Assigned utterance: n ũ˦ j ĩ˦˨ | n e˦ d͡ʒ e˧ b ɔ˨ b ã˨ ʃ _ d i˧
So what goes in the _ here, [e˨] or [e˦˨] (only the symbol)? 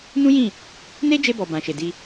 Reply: e˨